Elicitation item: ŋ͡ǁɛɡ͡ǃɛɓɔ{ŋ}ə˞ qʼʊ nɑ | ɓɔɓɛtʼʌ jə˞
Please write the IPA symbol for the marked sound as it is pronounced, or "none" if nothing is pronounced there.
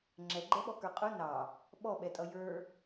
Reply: k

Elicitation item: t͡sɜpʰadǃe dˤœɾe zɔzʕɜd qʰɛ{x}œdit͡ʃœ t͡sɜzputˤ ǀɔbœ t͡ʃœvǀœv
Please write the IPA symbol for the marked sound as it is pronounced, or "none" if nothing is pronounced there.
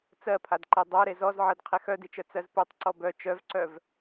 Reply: x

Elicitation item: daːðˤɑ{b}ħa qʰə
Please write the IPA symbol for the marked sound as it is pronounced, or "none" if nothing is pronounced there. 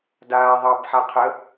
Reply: b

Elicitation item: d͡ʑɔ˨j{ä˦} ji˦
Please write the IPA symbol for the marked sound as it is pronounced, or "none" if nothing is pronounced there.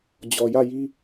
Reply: ä˦˨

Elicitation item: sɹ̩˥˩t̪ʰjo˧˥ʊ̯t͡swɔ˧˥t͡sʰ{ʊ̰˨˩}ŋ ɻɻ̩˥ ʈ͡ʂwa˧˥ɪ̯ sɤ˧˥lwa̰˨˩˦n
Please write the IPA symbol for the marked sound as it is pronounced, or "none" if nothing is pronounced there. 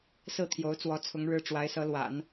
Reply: ʊ˧˥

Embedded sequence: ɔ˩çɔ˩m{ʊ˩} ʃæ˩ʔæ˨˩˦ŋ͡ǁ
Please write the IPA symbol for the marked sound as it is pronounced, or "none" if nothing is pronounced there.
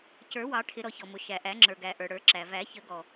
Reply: ʊ˩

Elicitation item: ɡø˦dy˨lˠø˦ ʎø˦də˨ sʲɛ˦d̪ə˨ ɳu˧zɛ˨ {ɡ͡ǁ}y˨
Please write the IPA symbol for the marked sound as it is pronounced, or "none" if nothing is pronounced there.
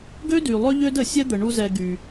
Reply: ɡ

